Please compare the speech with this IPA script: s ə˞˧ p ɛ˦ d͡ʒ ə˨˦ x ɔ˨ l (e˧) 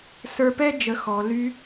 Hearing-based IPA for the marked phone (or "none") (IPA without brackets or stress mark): y˧